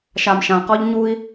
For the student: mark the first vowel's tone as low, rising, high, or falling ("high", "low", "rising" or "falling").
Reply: low